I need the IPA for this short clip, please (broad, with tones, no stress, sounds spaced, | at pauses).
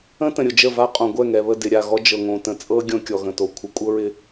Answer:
ə̃˦ t ə̃˨ ɾʲ ʊ˨ d͡ʒ ə˦˨ v a˦ qʼ õ˨ ɡʷ ɛ˦˨ ŋ ɛ˨ β ə˦˨ d ɪ˨ ɾʲ a˨ ɣ ɔ˦ d͡ʒ ɤ˨ ŋ õ˨ t ə̃˨˦ t͡sʼ ɤ˦ ɡʲ õ˦ kʲ ɔ˨ ɣ ə̃˨ t o˨ kʷʰ ə˨˦ kʷʼ ɤ˦ ɹ ɪ˦